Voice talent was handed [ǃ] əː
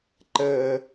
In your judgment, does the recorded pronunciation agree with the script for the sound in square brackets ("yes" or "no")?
yes